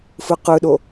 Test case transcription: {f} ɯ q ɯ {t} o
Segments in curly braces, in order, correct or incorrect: correct, incorrect: ɗ

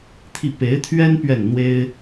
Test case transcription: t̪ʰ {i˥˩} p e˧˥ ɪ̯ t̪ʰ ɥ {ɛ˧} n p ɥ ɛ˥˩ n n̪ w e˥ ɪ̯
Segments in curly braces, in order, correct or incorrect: correct, incorrect: ɛ˥

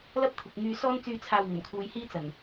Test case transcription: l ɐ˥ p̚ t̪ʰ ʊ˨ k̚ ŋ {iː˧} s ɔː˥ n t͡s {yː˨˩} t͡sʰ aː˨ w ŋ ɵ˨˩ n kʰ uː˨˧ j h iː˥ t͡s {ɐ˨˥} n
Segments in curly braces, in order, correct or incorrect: incorrect: yː˧, incorrect: yː˧, incorrect: ɐ˨˩

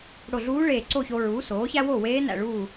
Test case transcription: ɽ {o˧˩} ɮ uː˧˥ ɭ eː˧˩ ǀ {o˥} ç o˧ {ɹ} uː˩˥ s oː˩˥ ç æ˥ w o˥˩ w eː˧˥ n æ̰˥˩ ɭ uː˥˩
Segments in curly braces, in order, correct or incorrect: correct, incorrect: o˥˩, correct

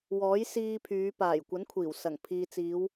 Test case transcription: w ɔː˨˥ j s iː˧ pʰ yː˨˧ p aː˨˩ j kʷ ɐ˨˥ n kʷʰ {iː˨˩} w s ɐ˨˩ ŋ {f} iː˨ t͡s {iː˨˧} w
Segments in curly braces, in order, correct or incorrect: correct, incorrect: pʰ, correct

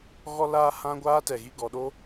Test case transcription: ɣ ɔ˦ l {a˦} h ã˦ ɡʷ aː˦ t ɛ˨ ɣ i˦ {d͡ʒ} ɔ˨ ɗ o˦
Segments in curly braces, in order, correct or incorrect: incorrect: aː˦, incorrect: ɡ

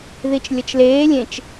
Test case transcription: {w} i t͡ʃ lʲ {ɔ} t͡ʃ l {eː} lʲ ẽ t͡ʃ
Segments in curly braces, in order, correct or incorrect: incorrect: ð, incorrect: ʌ, correct

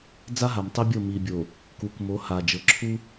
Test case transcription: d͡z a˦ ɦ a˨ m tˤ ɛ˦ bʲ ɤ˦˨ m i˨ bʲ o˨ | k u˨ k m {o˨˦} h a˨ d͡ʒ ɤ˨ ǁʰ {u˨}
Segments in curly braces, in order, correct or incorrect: correct, incorrect: u˦

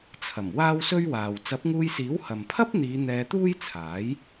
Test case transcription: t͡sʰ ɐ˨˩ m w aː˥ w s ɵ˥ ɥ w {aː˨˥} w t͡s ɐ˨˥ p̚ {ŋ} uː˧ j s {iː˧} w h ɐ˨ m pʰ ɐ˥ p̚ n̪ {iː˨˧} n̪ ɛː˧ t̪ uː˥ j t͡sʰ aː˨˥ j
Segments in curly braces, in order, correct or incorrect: incorrect: aː˨, correct, incorrect: iː˨˥, correct

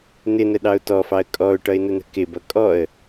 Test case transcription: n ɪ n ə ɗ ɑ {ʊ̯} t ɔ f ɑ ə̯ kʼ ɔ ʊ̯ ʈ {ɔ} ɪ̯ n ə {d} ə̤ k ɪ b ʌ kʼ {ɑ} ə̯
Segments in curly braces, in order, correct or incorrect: correct, incorrect: ʌ, incorrect: n̪, incorrect: ɔ

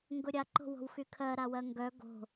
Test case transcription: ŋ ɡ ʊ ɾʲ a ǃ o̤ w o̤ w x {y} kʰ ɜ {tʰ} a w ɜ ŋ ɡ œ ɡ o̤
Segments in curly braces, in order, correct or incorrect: correct, incorrect: ɾ

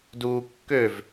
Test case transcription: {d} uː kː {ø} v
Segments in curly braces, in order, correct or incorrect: correct, correct

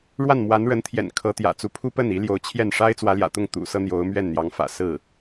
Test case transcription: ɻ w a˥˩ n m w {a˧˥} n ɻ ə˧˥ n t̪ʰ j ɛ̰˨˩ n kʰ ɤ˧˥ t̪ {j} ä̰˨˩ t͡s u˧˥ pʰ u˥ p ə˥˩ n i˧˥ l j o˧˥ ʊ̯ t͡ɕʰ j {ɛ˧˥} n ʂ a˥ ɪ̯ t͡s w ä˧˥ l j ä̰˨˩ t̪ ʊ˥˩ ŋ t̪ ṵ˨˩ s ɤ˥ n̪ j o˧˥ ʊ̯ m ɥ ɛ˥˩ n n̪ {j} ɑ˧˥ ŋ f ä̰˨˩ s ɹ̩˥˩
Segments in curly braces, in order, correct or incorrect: correct, correct, incorrect: ɛ˥˩, correct

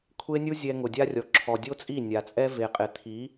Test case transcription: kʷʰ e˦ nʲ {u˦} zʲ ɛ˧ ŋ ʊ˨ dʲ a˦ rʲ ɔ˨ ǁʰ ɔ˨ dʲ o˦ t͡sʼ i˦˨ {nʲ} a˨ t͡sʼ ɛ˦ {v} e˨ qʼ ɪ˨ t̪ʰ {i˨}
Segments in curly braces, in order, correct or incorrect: correct, correct, correct, incorrect: i˨˦

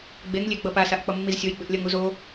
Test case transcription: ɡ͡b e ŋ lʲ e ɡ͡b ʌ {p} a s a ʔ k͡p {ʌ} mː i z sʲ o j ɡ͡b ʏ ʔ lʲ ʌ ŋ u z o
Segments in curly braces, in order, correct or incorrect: correct, correct

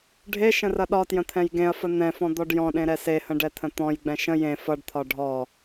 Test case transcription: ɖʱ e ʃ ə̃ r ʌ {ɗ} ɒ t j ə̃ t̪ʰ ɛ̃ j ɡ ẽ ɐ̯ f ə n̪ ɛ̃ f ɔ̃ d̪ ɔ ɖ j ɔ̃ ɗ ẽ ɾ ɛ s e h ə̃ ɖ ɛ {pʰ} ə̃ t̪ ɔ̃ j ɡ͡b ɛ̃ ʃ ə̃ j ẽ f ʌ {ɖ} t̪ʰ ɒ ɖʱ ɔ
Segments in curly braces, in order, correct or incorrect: correct, incorrect: t̪ʰ, correct

